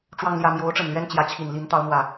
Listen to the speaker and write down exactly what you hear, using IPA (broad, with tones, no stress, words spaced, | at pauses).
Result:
ʈ͡ʂwɑ˥˧ŋljä˥˩ mjo˧˥ʊ̯ʈ͡ʂə˨˩nlɥɛ˥˩n t͡ɕjä˧˥ t͡ɕʰi˨˩n li˧˥n t̪ɑ˧˥ʊ̯n̪wä˨˩˦